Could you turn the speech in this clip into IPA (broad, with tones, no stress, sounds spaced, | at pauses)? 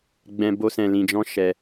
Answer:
ɡ͡b ɛ̃˧ b o˦ s ɛ̃˧ l ĩ˧ d͡ʒ ɔ̃˦ ʃ ɛ˧